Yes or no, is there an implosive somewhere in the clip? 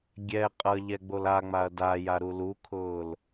no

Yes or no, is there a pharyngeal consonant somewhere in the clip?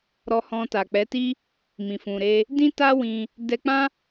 no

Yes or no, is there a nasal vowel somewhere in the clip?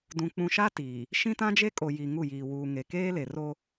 yes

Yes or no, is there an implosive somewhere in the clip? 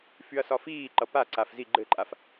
no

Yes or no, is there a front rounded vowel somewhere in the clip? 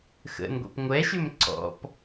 yes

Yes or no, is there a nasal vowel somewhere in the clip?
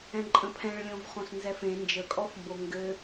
yes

